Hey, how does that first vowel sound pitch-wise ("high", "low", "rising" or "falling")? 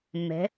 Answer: rising